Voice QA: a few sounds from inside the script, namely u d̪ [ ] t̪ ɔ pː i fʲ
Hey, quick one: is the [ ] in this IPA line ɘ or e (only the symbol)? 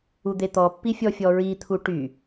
e